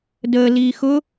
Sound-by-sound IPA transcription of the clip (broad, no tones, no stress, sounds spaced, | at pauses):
d əː l iː x ʊ